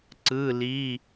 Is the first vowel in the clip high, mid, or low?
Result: high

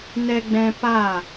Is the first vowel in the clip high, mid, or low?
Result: mid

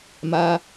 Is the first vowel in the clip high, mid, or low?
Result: low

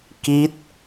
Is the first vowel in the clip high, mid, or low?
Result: high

